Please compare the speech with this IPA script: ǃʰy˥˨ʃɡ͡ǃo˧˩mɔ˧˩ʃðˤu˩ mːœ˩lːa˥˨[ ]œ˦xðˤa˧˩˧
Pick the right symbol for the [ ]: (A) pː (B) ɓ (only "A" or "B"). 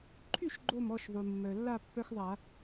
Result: A